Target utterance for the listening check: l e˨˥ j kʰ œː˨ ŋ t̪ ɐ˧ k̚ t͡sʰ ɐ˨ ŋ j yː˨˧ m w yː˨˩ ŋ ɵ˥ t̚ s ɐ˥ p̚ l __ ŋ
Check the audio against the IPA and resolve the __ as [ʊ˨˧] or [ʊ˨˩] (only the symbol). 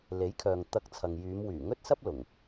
ʊ˨˩